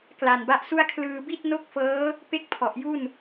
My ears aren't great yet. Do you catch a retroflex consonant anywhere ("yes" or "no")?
no